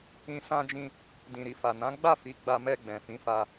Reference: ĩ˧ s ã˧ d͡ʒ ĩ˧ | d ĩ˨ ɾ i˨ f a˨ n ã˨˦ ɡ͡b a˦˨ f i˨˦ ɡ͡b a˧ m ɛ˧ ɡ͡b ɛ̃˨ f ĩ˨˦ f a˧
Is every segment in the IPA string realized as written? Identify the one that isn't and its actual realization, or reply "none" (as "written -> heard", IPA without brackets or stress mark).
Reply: none